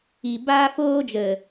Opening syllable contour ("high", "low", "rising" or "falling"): low